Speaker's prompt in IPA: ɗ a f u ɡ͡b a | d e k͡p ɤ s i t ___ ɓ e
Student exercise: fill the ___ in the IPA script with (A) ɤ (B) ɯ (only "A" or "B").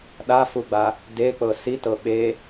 A